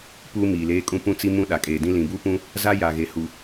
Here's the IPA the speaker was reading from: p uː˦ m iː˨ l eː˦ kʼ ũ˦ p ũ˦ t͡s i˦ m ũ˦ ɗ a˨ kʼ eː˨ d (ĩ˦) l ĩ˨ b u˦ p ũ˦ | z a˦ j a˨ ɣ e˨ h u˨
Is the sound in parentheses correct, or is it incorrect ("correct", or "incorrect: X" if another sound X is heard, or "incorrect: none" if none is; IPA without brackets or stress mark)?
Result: correct